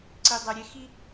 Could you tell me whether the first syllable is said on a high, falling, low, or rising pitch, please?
low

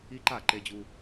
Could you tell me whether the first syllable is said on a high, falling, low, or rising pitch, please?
high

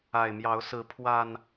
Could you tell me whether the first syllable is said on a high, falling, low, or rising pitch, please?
low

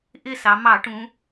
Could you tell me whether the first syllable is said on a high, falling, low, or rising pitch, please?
falling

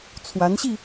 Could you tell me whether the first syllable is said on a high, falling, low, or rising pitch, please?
rising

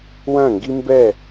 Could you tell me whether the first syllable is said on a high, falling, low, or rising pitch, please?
falling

